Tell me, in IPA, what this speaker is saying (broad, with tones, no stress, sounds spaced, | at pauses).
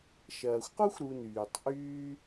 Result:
ʃ ɐː˩ xʷ q u˦ xʷ ɾ u˨ n yː˩ tˤ ʔ yː˦